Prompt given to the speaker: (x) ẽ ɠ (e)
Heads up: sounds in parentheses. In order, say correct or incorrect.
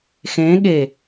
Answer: correct, correct

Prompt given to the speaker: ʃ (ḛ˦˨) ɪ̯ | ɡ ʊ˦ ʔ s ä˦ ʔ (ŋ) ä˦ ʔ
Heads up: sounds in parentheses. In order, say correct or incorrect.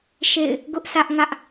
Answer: correct, correct

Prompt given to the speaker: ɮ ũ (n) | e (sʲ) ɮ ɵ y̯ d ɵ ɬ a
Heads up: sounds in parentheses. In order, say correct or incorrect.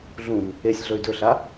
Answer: correct, correct

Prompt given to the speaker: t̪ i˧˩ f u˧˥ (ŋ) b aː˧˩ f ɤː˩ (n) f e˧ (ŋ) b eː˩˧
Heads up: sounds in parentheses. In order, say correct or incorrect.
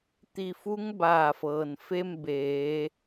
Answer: correct, correct, incorrect: m

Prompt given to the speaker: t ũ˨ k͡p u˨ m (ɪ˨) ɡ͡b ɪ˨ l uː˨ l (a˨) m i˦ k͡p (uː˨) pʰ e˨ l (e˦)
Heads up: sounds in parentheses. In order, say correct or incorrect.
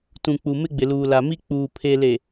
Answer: incorrect: ɪ˦, correct, correct, incorrect: e˨

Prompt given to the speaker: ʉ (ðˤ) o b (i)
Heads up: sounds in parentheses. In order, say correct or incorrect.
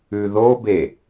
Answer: incorrect: ð, incorrect: e

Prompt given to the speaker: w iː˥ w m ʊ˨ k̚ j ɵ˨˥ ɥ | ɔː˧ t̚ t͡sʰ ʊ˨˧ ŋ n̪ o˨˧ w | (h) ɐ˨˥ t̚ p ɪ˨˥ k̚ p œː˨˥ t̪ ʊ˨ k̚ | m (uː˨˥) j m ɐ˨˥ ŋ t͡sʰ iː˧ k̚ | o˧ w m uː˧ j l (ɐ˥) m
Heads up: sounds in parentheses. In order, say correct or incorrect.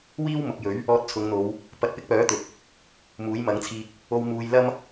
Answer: incorrect: p, correct, correct

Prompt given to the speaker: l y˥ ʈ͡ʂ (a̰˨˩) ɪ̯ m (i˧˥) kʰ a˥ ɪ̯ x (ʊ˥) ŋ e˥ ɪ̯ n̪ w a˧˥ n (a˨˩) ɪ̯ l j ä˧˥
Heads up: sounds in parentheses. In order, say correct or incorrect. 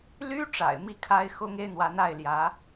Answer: correct, incorrect: i˥˩, correct, incorrect: a˥˩

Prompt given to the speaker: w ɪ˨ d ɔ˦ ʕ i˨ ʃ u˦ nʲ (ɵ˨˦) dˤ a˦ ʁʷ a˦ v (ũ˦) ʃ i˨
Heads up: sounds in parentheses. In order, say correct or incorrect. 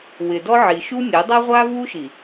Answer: incorrect: o˨˦, incorrect: u˦

